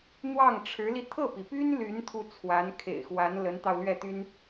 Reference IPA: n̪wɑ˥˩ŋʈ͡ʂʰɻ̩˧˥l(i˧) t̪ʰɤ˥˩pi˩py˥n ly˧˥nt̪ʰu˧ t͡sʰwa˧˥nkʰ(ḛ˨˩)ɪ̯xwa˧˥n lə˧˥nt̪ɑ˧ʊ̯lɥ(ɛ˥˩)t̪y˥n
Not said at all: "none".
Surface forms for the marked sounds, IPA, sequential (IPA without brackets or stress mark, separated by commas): i˧, ḛ˨˩, ɛ˥˩